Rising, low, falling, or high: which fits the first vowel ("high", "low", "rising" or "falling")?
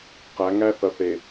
rising